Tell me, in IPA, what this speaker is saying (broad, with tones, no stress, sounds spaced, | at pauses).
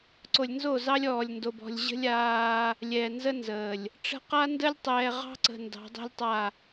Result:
ǀ o˨ lʲ n z o˦˨ z ɑ˦ lʲ ɔː˨ lʲ n d o˨ b ɔ̤˨ lʲ ʑ ə̤˦ lʲ aː˦ | lʲ ɛː˨ n z ə˦ n z əː˨ lʲ | ʈ͡ʂ ə̤˦ q a˦ n d ə˦ lʲ tˤ ɛː˨ ʁ ɑ̤˦ ǀ ə̤˨ n d ɑ̤˨˦ dˤ ɛ̤˦ lʲ tˤ a˦˨